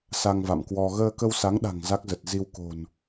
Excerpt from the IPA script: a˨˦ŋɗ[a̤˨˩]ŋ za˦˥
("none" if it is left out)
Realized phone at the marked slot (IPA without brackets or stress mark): a̤˨˩